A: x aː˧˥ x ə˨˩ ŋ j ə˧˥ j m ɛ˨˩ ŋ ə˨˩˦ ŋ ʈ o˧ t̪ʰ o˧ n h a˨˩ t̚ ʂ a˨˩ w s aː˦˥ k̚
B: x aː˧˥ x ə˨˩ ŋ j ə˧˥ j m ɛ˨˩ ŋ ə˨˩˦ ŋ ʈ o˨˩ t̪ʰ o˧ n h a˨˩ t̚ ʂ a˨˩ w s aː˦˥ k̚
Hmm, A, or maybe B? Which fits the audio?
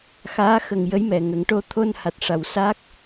A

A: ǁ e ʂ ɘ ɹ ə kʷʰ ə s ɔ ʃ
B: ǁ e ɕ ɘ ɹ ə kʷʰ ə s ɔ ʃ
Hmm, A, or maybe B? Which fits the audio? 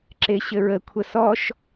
B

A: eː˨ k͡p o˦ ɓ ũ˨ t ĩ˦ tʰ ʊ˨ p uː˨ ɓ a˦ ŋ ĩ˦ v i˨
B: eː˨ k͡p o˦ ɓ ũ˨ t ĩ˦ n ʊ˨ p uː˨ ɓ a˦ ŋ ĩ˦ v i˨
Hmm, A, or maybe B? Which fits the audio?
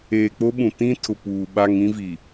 A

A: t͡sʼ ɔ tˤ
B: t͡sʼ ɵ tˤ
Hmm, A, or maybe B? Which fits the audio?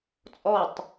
A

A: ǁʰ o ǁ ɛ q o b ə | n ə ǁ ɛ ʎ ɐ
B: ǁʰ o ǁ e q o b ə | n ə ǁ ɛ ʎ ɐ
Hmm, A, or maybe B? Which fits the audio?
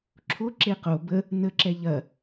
B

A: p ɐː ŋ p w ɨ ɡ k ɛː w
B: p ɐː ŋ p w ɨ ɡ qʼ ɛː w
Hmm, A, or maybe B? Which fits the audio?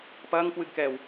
A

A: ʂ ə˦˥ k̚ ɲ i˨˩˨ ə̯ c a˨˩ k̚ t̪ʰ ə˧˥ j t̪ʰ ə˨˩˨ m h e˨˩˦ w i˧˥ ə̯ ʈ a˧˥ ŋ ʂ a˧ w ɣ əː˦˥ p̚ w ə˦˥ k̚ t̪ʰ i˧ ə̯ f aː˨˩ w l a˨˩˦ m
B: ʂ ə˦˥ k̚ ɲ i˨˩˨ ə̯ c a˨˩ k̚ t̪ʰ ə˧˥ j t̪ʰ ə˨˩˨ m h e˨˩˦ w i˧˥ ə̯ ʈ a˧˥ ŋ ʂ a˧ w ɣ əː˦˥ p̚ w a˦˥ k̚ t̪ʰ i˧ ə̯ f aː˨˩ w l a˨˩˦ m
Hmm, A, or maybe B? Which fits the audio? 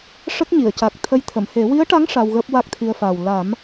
B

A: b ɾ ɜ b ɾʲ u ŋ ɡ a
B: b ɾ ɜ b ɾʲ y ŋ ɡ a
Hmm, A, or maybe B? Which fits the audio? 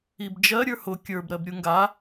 A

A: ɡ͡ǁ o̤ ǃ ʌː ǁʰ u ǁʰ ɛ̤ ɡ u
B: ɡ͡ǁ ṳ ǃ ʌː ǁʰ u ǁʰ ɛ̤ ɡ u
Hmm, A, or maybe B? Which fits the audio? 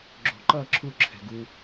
A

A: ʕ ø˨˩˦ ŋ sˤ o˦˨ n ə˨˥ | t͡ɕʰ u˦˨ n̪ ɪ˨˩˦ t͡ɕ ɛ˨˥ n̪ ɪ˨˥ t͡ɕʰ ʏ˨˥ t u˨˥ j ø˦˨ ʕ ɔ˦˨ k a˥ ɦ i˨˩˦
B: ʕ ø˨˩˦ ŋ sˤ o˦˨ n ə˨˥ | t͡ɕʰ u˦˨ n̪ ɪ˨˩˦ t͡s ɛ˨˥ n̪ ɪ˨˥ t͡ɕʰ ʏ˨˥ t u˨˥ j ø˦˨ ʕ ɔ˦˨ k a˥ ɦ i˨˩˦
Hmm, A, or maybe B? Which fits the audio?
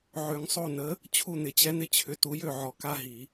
A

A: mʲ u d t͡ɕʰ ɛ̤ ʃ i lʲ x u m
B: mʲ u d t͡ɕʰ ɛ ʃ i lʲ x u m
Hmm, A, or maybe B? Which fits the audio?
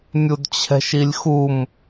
A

